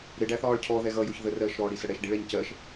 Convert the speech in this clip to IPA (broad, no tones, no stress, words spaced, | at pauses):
ɾɪ ɖæθɒːɭcʰɔðɛ ɣʌjʊç ðərɜːʃɾɔː ɽisəɽɛʃ ɖiɭɛɲcɜʃ